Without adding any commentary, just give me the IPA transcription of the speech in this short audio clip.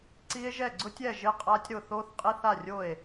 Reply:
ǀ i˦˥ e̯ ʒ ɛ˥˩ ɡ͡ǀ ʊ˦˥ tʲ ɛ˥˩ ʒ ɪ˦˥ qʼ a˦˥ tʲ ɾ ʊ˥˩ θ o˦˥ θ qʼ i˦˥ θ a˥˩ rʲ o˥˩ e̯

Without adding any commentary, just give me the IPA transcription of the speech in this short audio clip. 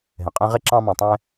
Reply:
ɦ ɛ̃˩ qʼ ɛ̃˦ ʁ e˥ ǁ ɑ̃˦ m ɑ̃˨ tˤ ɛ̃˦

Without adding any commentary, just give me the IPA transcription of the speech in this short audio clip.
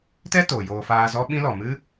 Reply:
t ɛ˦ t oː˨ j oː˧ f aː˧ z ɔ˦ ɓ ĩ˦ l ɔ˨ m ɨ˦

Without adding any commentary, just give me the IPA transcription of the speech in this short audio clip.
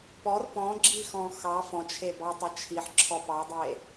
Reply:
p ɔ r p ɔ̃ ɡ͡ǁ i x ɔ̃ x ɑ f ɔ̃ t͡ʃʰ e b ɑ tˤ ɐ t͡ʃʰ i ħ ǁʰ ɔ p ɑ dˤ e

